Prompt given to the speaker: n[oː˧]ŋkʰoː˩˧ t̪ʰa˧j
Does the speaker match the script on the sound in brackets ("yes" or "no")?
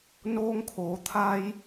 yes